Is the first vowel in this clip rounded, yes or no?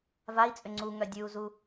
no